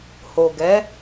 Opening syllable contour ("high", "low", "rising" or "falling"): low